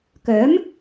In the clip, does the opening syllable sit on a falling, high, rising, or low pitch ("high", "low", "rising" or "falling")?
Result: rising